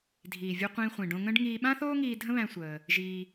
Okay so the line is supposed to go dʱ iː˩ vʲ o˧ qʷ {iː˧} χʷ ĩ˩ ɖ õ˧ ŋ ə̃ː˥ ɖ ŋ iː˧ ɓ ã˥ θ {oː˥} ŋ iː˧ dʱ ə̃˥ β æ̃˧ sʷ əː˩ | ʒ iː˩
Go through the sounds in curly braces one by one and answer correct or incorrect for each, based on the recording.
incorrect: ĩː˧, correct

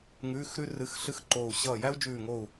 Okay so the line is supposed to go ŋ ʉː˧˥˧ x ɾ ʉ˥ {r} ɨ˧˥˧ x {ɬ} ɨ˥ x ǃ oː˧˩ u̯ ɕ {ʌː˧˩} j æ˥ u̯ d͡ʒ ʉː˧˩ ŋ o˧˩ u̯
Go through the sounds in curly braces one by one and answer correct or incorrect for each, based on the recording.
correct, correct, correct

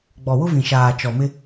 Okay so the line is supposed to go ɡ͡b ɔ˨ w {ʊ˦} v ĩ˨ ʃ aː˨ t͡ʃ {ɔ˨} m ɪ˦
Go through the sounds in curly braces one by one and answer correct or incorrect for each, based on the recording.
correct, correct

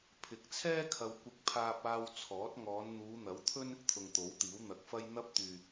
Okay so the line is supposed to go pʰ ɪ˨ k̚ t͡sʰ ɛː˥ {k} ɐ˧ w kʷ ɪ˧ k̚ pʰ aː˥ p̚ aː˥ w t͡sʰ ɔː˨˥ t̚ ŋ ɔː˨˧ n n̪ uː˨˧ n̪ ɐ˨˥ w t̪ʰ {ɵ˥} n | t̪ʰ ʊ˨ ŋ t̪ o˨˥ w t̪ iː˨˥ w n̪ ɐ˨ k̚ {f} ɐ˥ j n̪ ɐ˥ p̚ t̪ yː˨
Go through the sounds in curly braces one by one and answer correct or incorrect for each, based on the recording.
incorrect: kʰ, correct, correct

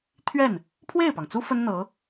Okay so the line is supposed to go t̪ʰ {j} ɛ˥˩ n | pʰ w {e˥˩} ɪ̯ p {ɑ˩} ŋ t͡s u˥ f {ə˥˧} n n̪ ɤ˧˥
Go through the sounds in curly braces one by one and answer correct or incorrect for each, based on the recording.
incorrect: ɥ, correct, correct, incorrect: ə˥

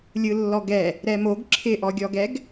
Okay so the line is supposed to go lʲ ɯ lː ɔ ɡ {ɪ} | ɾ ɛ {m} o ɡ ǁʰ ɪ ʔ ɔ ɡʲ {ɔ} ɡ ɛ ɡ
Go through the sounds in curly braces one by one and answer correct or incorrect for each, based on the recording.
incorrect: ɛ, correct, correct

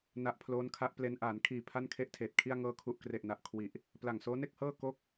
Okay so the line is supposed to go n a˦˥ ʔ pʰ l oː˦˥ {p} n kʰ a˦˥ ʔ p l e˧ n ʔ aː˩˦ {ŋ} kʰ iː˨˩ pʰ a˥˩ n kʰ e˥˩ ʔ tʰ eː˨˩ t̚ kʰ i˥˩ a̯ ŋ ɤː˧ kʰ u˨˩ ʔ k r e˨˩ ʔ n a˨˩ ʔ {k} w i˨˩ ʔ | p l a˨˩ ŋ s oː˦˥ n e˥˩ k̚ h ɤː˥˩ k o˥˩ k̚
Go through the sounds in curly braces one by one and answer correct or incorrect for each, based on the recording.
incorrect: none, incorrect: n, incorrect: kʰ

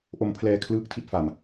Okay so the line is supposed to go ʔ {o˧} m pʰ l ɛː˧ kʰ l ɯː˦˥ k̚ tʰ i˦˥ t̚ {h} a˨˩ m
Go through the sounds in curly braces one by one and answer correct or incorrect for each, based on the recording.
correct, incorrect: f

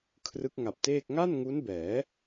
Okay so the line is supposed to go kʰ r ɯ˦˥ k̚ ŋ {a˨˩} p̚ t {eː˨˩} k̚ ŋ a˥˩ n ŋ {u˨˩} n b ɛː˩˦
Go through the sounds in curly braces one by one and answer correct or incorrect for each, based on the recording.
correct, incorrect: eː˥˩, incorrect: u˦˥

